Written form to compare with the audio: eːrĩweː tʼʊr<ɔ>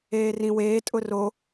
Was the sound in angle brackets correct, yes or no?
no